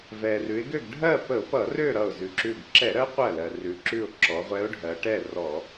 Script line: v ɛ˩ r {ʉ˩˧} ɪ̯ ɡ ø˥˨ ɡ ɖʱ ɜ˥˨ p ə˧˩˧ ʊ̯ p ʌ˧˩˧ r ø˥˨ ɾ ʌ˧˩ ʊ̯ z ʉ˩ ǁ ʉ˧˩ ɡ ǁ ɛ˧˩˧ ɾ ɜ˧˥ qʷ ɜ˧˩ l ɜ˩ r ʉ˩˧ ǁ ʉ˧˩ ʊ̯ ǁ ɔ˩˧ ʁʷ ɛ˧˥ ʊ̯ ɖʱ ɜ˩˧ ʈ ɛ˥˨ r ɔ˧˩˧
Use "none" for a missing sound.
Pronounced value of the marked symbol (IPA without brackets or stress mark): ʉ˩˧